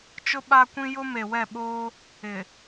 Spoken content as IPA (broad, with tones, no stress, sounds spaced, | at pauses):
t͡ʃ ʊ˦ ɓ a˦ kʷ ĩ˦ j ʊ˦ m e˨ w ɛ˦˨ ɓ oː˦ | ɪ˨